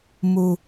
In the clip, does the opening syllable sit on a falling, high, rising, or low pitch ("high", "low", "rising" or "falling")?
low